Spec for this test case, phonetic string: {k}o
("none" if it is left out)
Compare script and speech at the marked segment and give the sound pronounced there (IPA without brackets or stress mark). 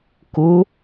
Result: k